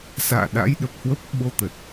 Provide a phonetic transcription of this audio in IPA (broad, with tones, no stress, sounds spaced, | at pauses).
s a̰ː˧˨ ɗ a̰˧˥ j ɗ ə˨˩ p̚ h w ə˦˥ p̚ ɓ o˧ t̪ ə˨˩ t̚